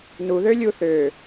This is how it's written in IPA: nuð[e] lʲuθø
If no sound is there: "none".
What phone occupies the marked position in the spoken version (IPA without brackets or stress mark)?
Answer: ø